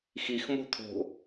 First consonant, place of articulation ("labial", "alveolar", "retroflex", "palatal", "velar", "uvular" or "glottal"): velar